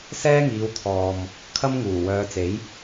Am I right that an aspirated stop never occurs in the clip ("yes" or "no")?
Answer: no